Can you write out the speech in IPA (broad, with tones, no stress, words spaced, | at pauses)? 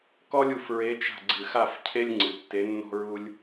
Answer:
kɔ˥lʲu˦˨f ɹe˧˥t͡ʃa̤˦˨ ɡ͡ǀɨ˨˩xa˦˨f cʰe˥lʲ ŋ͡ǀɨ˨˩tːe˧˥nːɔ̤˥ ɹu˥lʲ